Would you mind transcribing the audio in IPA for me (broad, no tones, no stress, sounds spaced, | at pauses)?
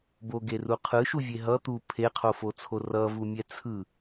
b o ɡ e r u qʰ ɯ ʃ u vʲ e ɦ ʌ t̪ u pʰ e qʰ o f o t͡sʰ o r ʌ v u mʲ ɛ t͡sʰ ɯ